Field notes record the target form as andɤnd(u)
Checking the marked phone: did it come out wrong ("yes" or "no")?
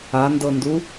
no